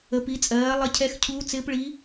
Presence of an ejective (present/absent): present